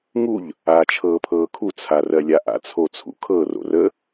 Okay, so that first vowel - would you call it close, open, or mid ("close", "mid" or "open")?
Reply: close